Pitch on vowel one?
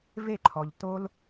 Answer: falling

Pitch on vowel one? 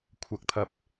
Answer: rising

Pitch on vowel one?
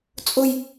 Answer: high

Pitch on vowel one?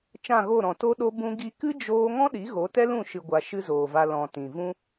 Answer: falling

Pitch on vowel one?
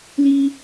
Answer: high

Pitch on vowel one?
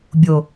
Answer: low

